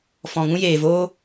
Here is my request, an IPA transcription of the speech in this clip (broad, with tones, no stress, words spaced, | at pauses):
fɔ̃˨ŋũ˦jeː˨ voː˦